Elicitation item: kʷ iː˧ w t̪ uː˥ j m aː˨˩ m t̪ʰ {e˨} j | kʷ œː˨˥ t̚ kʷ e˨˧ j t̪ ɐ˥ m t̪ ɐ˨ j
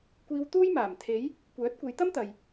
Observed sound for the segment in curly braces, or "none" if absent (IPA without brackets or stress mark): e˨˧